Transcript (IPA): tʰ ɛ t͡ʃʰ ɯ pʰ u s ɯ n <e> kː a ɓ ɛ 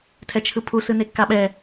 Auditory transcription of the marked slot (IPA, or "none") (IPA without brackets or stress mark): e